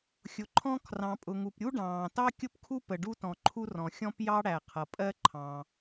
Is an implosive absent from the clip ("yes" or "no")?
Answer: yes